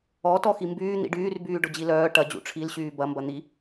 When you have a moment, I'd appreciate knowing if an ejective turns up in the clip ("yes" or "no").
no